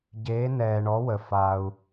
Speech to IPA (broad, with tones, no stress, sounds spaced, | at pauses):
ɟ eː˨˦ n ɛː˨ ɳ ɔ˨˦ w ə˨ f a˨ u̯